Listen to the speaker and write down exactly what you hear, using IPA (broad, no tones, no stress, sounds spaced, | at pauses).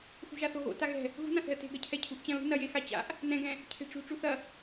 x ṳ ʒ a θ o ɣ o̰ t a ɣ ɛ̤ | ɣ ṳ n ã θ ɛ̤ ə̯ t e̤ ɡ ɐ cʰ ɛ cʰ ṳ ʔ t͡ɕ ɐ̃ l ṳ n ɐ j e x a t͡ɕ a̰ ʔ | n ɛ̃ ɡ ɛ̃ | cʰ e̤ ʈ͡ʂ ṳ ʈ͡ʂ u θ ɐ